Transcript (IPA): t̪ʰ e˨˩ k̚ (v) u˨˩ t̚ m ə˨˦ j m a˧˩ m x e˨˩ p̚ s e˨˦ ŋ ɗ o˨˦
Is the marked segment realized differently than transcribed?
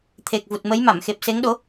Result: no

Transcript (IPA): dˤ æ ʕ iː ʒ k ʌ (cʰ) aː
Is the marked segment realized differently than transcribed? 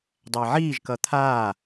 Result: yes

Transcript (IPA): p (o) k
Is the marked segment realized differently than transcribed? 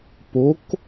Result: no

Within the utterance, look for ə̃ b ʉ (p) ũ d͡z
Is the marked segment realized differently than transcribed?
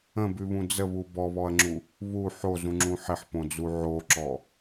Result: yes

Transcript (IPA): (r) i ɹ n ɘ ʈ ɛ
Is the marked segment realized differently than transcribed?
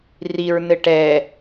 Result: no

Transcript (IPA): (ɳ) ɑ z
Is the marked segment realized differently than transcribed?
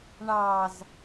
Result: no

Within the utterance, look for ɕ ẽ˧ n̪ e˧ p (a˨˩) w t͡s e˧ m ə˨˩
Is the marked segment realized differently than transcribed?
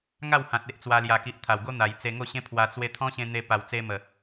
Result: no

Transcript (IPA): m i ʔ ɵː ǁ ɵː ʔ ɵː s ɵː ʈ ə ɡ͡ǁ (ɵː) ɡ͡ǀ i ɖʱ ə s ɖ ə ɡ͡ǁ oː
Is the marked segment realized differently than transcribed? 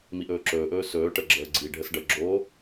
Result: yes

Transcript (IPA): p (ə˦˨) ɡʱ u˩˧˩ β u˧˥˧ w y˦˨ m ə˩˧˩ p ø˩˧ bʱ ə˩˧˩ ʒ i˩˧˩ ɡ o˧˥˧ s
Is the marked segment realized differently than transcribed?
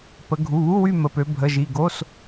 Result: yes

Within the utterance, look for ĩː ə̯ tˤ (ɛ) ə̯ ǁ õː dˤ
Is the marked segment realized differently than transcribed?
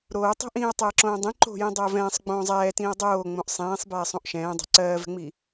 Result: no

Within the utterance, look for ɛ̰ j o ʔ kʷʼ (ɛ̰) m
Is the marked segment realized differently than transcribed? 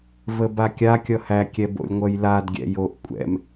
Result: no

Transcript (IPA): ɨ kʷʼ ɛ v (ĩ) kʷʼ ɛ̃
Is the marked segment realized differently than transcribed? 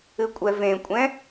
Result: yes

